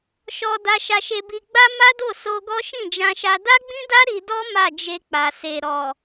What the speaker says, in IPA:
ʃ ɔ˧ d a˧ ʃ a˧ ʃ e˧ b i˧ ɡ͡b a˦ m a˦ d o˦˨ s o˧ ɡ ɔ˦ ʃ ĩ˦˨ d͡ʒ ã˧ ʃ a˧ d a˦ ɡ͡b ĩ˦ d a˦ ɾ i˧ d ɔ˦ m a˦˨ d͡ʒ e˧ k͡p a˨ s e˨ ɾ ɔ˨

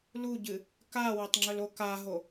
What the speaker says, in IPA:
l u ɟ ɨ | k a w ɐ tˤ ŋ͡ǁ ɵ l o k a ɦ o

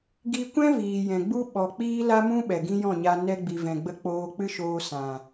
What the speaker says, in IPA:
ɡ i˧ kʷ ɛ̃˦ v iː˨ j ɛ̃˨ ɡ͡b u˦ ɓ ɔ˨ k͡p iː˦ l a˦ m ũ˦ ɓ ɛ˨ ɡ ĩ˦ j ɔ̃˦˨ ɲ a˧ n ɛ˧ ɡ͡b i˨ v ɛ̃˨ ɡ͡b ə˧ k͡p oː˧ k͡p ɨ˦ ʃ oː˧ s ã˨

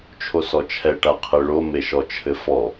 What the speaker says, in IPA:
t͡ʃʰ o s ɔ t͡ʃʰ ɛ ʈ a qʰ ɨ ɭ o m e ʃ ɔ t͡ʃʰ ɘ f ɔ

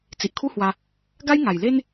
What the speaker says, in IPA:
t͡s i˨ ʔ kʰ u˦ h w a˧ | ɡ a˦ j ŋ a˨˩ j l e˦ n

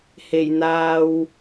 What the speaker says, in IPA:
h e˨˩ j n̪ aː˨ w

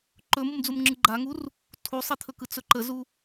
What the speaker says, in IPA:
ǃ ɵ m u m d͡z u m ŋ͡ǁ ɯ ɡ͡ǃ a ŋ u r | tʰ u sˤ i t̪ʰ ɵ k ɯ t͡s ɵ ǃ ə z u

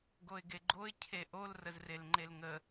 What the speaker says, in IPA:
ɡ o ɪ̯ ɡ e ɡ͡ǃ o ɪ̯ cʰ e ʔ o l r ə z r e l ŋ͡ǃ e l ŋ ə

